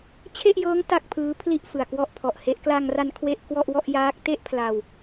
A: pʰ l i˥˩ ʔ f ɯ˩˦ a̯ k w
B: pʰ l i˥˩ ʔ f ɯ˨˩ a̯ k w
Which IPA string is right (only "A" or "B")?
B